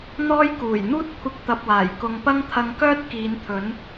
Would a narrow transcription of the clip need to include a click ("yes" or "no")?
no